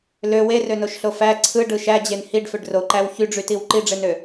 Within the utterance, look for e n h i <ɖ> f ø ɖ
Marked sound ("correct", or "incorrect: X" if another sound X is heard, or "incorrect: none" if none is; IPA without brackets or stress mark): correct